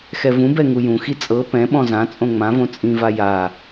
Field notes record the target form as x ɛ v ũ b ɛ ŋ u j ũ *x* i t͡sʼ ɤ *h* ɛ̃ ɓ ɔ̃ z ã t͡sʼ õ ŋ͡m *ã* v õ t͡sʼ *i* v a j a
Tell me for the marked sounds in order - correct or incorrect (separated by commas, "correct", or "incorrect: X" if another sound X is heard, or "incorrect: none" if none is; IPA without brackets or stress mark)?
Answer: correct, incorrect: p, correct, incorrect: ĩ